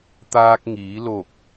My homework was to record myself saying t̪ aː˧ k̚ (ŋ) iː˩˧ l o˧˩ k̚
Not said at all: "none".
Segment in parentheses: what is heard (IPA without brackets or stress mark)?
ŋ